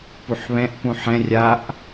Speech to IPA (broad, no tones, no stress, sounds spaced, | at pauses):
p u ħ β ɛ̃ ʔ p ũ ħ ɛ̃ rʲ a ʔ